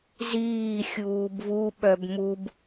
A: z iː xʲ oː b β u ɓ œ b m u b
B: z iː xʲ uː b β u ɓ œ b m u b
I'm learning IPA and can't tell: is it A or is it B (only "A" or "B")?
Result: B